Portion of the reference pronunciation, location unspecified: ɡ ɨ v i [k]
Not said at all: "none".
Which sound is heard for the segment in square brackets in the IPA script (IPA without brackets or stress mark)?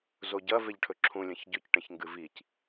c